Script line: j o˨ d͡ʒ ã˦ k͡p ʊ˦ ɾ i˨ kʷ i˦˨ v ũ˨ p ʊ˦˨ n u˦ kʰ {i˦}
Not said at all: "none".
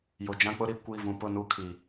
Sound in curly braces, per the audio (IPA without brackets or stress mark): i˨